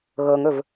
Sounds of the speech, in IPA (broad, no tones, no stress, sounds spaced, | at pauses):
ɣ ɤ ŋ ɵ v